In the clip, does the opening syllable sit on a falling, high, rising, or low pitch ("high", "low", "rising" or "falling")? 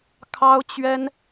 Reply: high